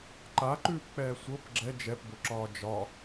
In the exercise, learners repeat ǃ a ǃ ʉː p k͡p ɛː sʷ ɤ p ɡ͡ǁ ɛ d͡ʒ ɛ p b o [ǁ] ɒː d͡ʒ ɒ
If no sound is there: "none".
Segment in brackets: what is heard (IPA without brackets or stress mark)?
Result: ǁ